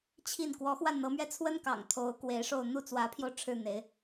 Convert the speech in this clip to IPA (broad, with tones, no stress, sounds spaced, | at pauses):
t͡ɕʰ i˥˩ n k w ɔ˧˥ x w a˥˩ n n̪ ɤ˧˥ m ɥ ɛ˥˩ t͡sʰ w ə˥ n k ɑ̰˨˩ ŋ t̪ʰ o˧˥ ʊ̯ k w e˧˥ ɪ̯ ʂ o˥˧ ʊ̯ n̪ u˥˩ t͡s w ä˧˥ pʰ j o˧ ʊ̯ ʈ͡ʂʰ ɻ̩˥˩ n̪ e˧˥ ɪ̯